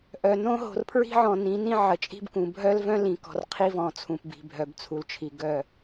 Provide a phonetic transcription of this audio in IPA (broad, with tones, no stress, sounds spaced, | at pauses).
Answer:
ʔ œ˨ n õ˦ ɦ o̤˨ r pʰ ɹ i̤˦ ʕ ɔ̃˨ n ĩ˨˦ n ĩ˦ ʕ ə˨ t͡ʃʼ i̤˦ b k ũ˨ bʱ œ˦ l v œ̃˦ l ĩ˨ k ɔ̤˨ r qʰ i˦ v ɔ̃˨ t͡sʰ ũ˨ p b i̤˨ bʱ œ˨ b t͡sʰ u˨ l t͡ʃʰ i˨ ɡ œ˦˨